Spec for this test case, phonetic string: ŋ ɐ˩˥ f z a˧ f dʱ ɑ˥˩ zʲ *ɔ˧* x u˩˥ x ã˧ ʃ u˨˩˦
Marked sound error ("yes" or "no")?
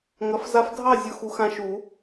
yes